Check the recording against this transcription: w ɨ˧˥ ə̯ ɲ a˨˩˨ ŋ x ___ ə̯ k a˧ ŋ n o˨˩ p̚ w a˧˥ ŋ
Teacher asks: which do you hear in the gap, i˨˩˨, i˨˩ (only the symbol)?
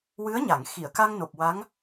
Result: i˨˩˨